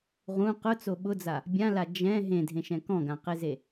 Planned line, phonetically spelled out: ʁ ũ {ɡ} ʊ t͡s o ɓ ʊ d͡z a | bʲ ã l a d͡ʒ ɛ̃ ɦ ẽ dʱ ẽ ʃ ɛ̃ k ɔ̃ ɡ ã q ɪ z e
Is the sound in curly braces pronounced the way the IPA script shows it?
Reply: no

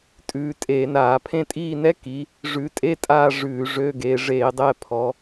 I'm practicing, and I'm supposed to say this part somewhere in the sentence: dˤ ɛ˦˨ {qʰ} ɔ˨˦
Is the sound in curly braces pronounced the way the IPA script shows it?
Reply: no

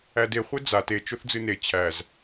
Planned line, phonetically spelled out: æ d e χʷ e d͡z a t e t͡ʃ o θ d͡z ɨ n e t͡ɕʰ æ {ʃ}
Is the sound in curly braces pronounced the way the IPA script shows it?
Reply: no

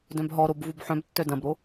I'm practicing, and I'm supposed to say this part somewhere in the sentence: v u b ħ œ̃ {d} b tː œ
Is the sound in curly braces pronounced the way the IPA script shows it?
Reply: no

